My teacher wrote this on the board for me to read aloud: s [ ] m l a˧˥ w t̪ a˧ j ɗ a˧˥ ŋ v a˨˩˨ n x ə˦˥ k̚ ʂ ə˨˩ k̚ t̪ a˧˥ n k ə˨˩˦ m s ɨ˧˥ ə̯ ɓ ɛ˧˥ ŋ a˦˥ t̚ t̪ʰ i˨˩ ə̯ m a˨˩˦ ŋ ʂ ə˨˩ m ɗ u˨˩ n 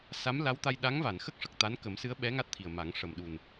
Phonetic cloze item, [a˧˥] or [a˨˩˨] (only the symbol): a˧˥